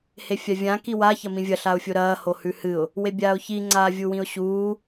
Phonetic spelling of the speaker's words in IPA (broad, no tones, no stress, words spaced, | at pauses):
hefʲavʲã kiwa çɐmĩvʲɐ ɬaʊ̯fʲoɾɐː hohʉhɨʊ̯ | webʲaːʊ̯çi ŋ͡ǀaːvʲuwĩʊ̯ɕuː